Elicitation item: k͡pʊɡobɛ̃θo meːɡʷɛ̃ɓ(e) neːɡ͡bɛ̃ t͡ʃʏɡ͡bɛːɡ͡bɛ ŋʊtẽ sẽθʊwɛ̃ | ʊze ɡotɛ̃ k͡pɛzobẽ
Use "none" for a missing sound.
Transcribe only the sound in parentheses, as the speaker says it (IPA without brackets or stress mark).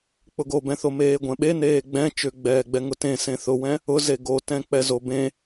e